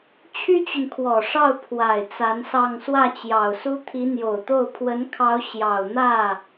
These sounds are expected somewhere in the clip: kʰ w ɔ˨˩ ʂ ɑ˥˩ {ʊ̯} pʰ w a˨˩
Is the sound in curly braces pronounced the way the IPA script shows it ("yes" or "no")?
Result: yes